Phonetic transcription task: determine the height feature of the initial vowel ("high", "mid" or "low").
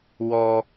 mid